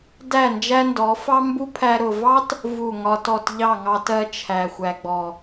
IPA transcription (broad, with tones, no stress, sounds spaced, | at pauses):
d æ˦˨ n d͡ʒ æ˦ n d ɔ˨˦ f ɑ˦ m b u˦ pʰ æ˧ ɾ ʊ˨ v ɑ˦ t | v u˦˨ ŋ ɒ˦ t ɔ˦˨ t ʎ ɑ˦˨ ŋ ɑ˧ t ɜ˧ t͡ʃʰ æ˨ xʷ æ˨ ɡ͡b ɔ˨